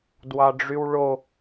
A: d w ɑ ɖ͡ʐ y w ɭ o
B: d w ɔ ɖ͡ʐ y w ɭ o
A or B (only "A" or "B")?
A